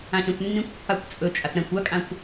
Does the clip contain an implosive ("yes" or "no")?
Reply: no